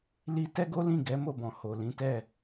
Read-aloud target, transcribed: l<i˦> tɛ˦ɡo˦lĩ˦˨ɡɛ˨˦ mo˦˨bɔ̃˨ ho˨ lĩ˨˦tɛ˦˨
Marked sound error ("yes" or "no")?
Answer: yes